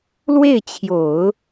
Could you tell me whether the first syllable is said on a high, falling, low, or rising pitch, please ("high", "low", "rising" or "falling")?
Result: falling